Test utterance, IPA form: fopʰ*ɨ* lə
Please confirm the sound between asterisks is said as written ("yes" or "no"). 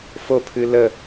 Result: yes